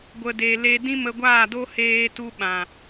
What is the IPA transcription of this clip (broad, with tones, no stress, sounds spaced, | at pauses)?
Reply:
ɡʷ ə˨ d e˨ l e˧ d ĩ˦ m ə˧ ɡʷ aː˦˨ d o˦ h eː˧ t u˧ ɓ ã˨